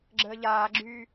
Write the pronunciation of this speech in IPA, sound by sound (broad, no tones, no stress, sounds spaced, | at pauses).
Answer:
ɡ͡ǁ əː ʎ aː ɡ͡ǁ yː